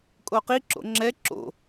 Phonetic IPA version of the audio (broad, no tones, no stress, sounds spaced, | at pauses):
kʼ o q i ǁ o̰ ŋ͡ǁ ɛ ǁ o̰